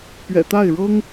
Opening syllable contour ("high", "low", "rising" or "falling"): low